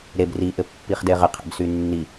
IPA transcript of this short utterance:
ɾ e b r i ʔ ɘ pː i χ d e ʁ ɘ qʰ ɛ̰ b s y nː i

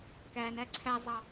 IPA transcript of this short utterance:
k æ n æ ǀʰ æ zˤ ɑ

